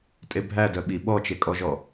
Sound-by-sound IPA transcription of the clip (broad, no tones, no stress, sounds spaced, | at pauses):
tʼ e bʱ æ d œ ɓ i ɓ ɔ t͡ʃ e kʼ ɔ ʒ ɔ